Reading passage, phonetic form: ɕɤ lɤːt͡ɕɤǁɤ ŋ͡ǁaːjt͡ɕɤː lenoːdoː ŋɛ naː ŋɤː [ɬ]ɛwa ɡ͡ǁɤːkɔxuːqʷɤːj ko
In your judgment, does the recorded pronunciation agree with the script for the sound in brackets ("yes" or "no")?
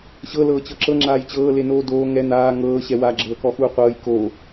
no